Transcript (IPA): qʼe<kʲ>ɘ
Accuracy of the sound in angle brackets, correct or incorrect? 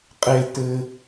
incorrect